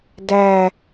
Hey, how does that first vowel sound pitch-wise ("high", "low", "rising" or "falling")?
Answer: low